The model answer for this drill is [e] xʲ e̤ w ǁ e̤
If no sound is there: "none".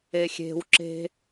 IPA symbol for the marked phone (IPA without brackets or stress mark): e